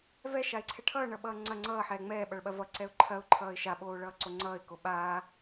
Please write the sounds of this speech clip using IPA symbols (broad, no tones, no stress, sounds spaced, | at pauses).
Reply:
v ɛ ʃ a ɪ̯ ǀʰ ɛ ʈʰ ʌː ɳ ʌ ɓ ʌː ŋ͡ǀ ɐ ŋ͡ǀ ʌː ħ ɛː ŋ͡m ɛː ɓ ʌ ɭ ɓ ɐ v ʌ ǀ ɛ ʊ̯ ǃʰ ɐ ʊ̯ ǃʰ ʌː ɪ̯ ʃ a ɓ oː ɭ ʌː ǀ o ŋ͡ǀ ʌː ɪ̯ k o ɓ aː